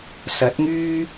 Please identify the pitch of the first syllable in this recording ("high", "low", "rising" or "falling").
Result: rising